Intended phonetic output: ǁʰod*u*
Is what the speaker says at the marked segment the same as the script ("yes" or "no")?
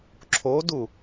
yes